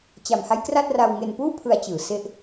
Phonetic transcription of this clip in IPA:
t͡ɕ a˨˩ m h a˦˥ j k r a˥˩ t̚ r a˧ w ŋ e˧ n p uː˥˩ pʰ ɯ˧ a̯ t͡ɕ ɯː˩˦ s e˦˥ ʔ

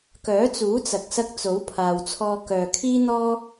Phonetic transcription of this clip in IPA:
k œː˨˥ t͡s uː˨˥ t͡s ɐ˨ k̚ s ɐ˧ k̚ t͡s o˨˥ w pʰ aː˨ w t͡sʰ ɔː˧ k œː˨ kʰ iː˥ n̪ ɔː˥

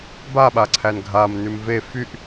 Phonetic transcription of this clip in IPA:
b a ɓ a ǀʰ æ n ɡʱ a m n ʉ m v e f y ʔ

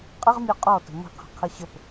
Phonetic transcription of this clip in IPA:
qʼ ə ʁ mʲ ɔ qʼ ɔ t ə̤ m ə̤ qʰ ə̤ qʰ ə ɕ ə p

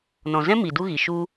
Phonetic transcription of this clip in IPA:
n ɔ̃˨ z ɛ̃˦ m i˨ d u˦ ɣ i˨ ʃ u˧

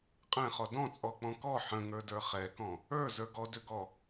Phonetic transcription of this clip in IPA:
qʼ ɛ̃ χ ɔ d ɔ̃ t͡sʼ ɔ k͡p ɔ̃ k ɔ ħ ə̃ ŋ ə˞ d ə˞ χ ɛ k ɔ̃ | ə˞ z ə˞ ɡ ɔ d ʏ ɡ ɔ

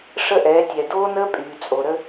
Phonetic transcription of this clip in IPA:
ʂ ə˦ ʔ ɛː˨˦ tʲ ɛ˨ d oː˦ n əː˦ pʼ yː˨ t͡sʼ o˨ ɾ ə˦

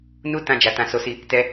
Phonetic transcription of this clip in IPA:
n u˦ t ã˦ d͡ʒ a˧ t ã˧ s o˧ s i˧ | t ɛ˧

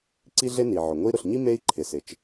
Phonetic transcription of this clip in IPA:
ǀ i˥ ɮ e˥ n i˩ ʕ ʊ˩ ŋʷ i˥ ɾ ʊ˩ ɬ ɲ i˥ m e˥ i̯ ǃʰ ɪ˩ s ɪ˩ t͡ʃ

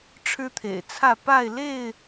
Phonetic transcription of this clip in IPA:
ʈ͡ʂʰ ɻ̩˦ t̪ʰ ḛ˨˩ ɪ̯ t͡sʰ ä˥˨ p a˥˨ ɪ̯ l e˥˨ ɪ̯

